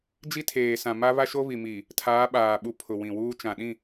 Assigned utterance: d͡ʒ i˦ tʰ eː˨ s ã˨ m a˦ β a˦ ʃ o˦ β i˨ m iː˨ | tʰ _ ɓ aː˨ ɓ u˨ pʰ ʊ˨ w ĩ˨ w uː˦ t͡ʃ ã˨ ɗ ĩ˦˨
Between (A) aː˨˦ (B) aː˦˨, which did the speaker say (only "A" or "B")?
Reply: A